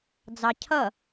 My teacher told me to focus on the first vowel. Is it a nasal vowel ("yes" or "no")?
no